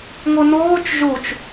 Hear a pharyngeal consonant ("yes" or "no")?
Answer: no